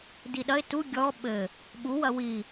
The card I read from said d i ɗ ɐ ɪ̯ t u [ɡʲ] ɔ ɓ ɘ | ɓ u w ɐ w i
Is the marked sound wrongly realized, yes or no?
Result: no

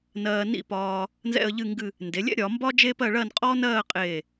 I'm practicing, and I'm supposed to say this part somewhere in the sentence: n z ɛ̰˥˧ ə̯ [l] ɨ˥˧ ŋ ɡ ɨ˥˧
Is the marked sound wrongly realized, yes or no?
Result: yes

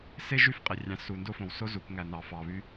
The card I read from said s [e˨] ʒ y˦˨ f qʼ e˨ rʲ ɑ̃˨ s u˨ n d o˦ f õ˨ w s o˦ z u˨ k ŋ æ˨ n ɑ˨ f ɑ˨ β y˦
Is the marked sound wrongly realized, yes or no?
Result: yes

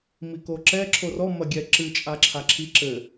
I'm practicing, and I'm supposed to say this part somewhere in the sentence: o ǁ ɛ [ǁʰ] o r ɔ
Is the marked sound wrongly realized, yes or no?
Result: no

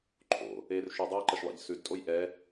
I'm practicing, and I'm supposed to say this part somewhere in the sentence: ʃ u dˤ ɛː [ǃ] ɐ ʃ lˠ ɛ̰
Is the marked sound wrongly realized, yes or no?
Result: no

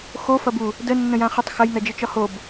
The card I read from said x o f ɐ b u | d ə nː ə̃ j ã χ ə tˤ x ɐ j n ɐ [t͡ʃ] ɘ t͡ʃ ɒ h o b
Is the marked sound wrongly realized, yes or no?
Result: yes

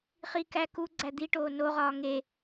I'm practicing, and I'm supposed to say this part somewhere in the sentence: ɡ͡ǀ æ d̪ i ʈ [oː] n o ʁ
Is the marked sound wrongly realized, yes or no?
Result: no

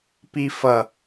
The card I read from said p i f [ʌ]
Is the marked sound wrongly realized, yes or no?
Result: no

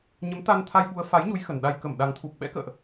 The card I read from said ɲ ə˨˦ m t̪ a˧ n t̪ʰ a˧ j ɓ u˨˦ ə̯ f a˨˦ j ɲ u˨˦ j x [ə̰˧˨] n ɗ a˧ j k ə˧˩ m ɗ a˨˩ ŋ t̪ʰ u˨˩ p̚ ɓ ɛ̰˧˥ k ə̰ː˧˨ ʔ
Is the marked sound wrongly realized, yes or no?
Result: yes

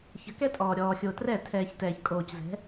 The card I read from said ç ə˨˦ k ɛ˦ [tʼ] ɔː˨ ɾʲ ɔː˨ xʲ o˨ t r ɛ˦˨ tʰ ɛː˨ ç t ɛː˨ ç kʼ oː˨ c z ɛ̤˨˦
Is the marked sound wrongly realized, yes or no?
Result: no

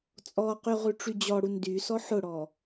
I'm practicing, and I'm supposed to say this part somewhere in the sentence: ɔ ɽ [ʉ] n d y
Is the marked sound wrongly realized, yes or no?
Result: yes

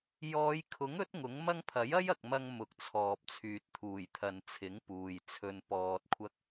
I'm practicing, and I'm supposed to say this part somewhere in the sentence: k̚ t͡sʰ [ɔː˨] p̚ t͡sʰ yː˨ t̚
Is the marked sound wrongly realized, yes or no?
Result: no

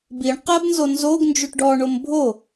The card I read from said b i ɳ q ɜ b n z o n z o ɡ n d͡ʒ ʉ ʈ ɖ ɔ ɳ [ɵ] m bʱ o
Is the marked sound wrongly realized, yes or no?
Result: yes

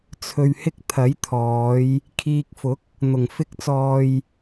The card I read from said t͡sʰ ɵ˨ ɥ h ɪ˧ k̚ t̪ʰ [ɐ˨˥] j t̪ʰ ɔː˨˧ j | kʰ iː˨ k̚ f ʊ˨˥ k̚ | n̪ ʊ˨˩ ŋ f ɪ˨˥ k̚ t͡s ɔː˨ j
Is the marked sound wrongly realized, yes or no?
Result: no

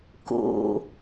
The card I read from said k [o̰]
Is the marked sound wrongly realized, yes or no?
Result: no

